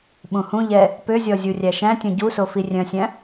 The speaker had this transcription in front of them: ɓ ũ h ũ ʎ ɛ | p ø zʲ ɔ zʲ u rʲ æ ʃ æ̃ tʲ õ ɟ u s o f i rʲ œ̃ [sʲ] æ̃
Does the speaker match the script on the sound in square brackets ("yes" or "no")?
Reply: yes